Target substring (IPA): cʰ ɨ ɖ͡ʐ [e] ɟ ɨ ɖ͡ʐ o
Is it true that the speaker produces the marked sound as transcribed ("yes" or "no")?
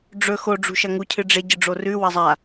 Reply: yes